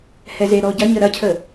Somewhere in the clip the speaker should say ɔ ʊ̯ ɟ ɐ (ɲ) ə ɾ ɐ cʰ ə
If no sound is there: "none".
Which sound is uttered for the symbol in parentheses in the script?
ɲ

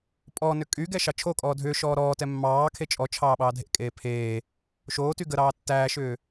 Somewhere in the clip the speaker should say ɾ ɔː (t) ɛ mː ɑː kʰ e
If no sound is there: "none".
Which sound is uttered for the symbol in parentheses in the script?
t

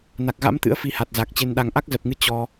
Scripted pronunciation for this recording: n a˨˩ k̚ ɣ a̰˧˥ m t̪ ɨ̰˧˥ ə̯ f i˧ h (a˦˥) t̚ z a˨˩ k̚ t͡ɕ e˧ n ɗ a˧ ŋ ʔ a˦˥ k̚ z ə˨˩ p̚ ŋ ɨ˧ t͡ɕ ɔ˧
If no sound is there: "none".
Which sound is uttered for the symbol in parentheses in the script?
a˨˩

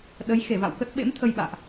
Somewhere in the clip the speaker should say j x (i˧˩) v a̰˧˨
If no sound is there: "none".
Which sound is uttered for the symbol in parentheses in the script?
e˧˩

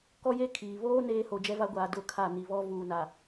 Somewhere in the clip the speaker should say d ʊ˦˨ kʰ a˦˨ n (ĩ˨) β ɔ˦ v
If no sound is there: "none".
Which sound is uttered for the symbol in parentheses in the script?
i˨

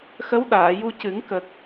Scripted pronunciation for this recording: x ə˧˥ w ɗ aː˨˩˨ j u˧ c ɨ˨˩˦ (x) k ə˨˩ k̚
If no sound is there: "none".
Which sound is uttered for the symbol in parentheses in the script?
ŋ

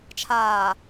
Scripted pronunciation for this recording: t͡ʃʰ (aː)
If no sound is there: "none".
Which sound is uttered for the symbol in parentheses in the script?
aː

